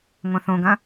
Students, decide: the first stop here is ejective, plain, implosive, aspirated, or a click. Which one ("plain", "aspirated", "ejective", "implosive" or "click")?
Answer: plain